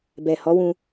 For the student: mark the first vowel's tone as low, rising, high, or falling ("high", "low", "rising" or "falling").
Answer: low